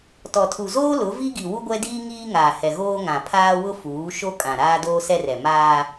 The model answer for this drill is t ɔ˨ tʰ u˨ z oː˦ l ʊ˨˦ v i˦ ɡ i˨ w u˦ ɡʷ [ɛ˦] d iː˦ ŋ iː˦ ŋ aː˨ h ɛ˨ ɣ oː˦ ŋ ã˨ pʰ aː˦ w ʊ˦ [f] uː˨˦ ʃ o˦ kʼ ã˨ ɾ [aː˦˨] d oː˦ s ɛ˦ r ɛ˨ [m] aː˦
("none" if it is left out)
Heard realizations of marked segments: ɛ˦, f, aː˦, m

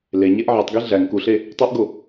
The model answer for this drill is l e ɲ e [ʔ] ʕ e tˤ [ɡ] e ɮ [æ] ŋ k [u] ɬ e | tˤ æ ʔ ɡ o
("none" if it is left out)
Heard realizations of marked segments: ʔ, ɡ, æ, u

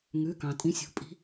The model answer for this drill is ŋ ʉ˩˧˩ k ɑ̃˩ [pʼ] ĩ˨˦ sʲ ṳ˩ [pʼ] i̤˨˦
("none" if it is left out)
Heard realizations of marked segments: tʼ, pʼ

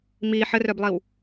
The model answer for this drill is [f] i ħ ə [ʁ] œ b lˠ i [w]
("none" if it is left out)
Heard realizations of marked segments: m, r, w

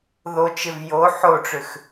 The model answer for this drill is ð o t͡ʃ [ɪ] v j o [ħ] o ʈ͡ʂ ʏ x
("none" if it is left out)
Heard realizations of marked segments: ɪ, ħ

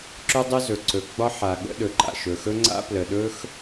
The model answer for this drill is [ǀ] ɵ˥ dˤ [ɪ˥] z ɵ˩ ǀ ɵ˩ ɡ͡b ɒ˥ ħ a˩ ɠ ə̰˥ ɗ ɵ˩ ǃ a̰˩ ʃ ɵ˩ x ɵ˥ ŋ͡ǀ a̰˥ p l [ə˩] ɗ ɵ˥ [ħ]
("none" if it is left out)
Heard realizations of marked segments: ǁ, ɪ˥, ə˩, x

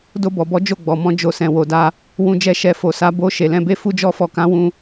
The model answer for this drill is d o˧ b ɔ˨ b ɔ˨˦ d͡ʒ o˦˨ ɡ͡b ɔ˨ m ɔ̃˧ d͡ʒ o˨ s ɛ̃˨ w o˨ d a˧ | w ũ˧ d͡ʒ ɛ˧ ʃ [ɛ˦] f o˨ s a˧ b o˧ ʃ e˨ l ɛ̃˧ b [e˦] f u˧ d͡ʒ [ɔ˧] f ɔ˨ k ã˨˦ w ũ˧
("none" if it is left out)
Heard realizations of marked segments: ɛ˨, e˦, ɔ˧

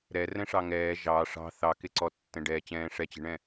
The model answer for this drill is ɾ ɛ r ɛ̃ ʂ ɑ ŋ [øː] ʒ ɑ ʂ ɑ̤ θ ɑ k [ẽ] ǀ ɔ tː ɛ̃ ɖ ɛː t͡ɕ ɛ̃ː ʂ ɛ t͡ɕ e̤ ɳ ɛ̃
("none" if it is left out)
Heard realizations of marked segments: ɛː, e

